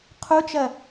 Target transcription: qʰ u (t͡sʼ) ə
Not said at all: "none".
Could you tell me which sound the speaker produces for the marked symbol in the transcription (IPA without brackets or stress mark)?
t͡ʃ